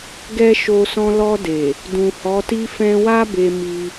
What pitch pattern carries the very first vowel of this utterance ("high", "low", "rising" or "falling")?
high